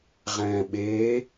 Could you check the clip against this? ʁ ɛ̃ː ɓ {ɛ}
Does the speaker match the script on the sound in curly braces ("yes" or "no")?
no